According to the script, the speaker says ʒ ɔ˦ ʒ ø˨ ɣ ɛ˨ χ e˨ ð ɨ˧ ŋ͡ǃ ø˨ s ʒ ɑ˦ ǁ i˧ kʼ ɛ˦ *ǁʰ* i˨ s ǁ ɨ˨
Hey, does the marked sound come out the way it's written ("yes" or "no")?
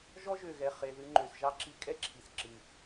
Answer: yes